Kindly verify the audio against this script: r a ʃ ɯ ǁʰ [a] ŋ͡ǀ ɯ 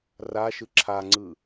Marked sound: correct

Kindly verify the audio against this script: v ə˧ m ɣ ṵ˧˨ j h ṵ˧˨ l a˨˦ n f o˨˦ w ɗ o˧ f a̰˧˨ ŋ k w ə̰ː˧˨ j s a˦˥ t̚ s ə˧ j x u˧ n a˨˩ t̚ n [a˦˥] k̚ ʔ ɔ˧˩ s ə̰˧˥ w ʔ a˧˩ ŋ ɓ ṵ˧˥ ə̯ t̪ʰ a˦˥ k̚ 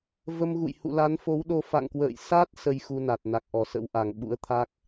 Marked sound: incorrect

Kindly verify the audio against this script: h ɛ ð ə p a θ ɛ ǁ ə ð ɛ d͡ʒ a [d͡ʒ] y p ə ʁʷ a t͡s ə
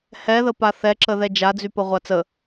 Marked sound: incorrect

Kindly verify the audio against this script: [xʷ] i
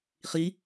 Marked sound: incorrect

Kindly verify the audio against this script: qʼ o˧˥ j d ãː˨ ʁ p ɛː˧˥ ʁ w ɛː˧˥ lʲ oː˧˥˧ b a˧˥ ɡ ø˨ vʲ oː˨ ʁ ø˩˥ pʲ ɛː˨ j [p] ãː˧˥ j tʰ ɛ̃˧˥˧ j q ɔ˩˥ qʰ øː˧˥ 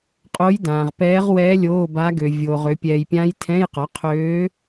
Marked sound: incorrect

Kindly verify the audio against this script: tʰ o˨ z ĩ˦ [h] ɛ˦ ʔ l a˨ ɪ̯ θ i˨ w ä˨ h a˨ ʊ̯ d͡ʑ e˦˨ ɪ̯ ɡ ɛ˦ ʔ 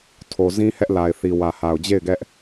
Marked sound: correct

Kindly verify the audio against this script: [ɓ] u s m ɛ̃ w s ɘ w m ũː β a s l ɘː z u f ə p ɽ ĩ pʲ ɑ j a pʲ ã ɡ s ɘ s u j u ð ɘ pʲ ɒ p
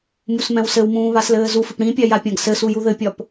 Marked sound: incorrect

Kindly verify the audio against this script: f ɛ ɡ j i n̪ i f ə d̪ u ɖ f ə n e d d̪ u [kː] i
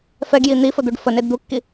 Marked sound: correct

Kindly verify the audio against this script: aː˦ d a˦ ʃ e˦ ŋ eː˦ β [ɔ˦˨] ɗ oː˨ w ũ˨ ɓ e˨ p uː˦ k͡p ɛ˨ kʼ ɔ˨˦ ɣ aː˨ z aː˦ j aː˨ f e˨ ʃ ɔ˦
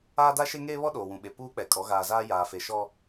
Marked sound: incorrect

